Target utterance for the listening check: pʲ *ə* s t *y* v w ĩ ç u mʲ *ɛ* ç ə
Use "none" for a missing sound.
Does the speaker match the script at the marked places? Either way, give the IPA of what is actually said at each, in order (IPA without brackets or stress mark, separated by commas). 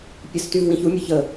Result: ə, y, ə